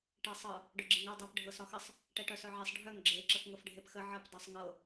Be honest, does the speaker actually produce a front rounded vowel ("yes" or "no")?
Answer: yes